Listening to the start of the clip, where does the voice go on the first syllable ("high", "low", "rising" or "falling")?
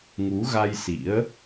rising